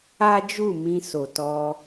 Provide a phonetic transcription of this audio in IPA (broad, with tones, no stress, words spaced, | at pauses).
a˦d͡ʒu˦˨mĩ˧ so˨tɔ˧